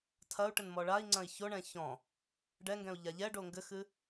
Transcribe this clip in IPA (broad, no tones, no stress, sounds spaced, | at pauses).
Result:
tʰ ɐ u̯ ʈ ɘ n m ɔ ɭ a i̯ ŋ͡ǀ ɐ̃ i̯ ç o ɳ ɛ̃ ç ɔ̃ | ɖ ɛ ŋ ɡ ɛ̃ u̯ ʎ a ʎ ɛ ɖ o ŋ ɡ ɘ x ɨ